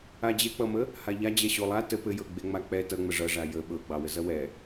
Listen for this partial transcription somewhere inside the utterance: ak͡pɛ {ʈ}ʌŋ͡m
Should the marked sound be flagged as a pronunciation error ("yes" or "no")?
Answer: yes